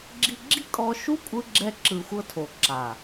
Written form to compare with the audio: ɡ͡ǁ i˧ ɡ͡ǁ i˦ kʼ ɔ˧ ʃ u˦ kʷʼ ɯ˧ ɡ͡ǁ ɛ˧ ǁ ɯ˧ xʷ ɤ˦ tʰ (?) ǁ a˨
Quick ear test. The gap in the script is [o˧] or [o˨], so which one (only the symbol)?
o˨